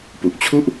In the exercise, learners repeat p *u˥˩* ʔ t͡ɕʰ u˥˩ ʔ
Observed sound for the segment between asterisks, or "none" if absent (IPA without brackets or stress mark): u˨˩